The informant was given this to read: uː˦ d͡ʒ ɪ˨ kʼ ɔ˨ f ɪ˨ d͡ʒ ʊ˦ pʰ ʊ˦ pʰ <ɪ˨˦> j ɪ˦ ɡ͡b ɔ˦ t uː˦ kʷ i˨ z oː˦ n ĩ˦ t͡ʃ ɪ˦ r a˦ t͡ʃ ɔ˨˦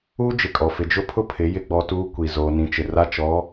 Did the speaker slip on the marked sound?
no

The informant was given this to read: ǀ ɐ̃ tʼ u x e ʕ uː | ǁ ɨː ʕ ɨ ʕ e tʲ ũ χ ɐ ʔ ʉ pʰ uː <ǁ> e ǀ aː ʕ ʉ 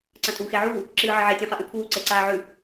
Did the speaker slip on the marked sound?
yes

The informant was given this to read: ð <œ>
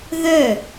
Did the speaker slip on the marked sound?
no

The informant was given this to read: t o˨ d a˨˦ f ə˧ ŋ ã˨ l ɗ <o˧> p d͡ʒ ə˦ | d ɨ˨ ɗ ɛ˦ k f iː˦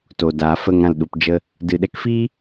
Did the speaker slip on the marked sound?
yes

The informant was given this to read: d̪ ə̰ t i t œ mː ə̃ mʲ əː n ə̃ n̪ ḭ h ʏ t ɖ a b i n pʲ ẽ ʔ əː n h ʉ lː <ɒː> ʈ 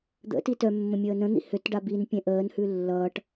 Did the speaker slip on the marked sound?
yes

